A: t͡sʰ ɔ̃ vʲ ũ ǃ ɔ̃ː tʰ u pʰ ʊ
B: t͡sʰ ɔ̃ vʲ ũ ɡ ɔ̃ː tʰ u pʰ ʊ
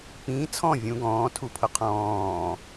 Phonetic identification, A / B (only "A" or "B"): B